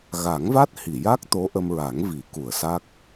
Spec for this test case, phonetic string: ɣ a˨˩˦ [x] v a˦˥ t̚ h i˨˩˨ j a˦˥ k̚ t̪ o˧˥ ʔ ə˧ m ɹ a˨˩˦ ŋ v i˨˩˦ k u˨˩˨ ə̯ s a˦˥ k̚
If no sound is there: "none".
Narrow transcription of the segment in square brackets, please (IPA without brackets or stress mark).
ŋ